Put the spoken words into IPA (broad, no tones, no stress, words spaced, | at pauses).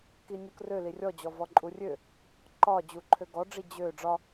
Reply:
kinʲukrø lirʲɔd͡ʑɔ vɔǃʼurʲø | ǃɒ d͡ʑuǃʰøɡɔɖ͡ʐi d͡ʑø ɖ͡ʐɒ